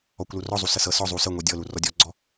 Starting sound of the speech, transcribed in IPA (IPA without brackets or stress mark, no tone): ɔ